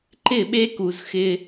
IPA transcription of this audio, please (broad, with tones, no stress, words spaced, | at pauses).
ǃɪ˦˨ɓe˦ku˨z xɪ˦